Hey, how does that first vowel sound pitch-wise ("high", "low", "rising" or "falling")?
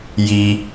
low